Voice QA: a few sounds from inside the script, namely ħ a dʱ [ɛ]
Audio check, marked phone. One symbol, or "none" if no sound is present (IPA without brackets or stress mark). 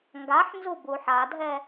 ɛ